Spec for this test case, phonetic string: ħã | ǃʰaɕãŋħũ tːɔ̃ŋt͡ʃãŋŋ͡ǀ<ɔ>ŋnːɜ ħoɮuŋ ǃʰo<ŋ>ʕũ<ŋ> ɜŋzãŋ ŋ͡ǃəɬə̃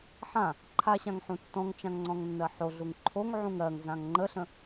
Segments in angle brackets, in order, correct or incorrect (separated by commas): incorrect, correct, correct